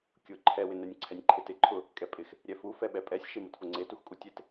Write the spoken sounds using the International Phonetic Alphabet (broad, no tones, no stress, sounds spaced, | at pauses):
kʲ ʊ ǃʰ ɛ w ɪ n ɛ nʲ ǀʰ ɛ nʲ ǃʰ ɪ t ɪ ǃʰ ʊ | kʼ ɛ pʼ ɪ x | ɾʲ ɛ f u f ɛ ɓ ɛ pʼ ɛ sʲ ʃ e m ʊ t f ʊ ŋ͡ǀ e t u x kʼ u tʲ e t